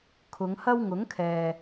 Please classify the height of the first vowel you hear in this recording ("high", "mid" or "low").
high